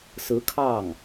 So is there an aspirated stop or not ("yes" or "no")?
yes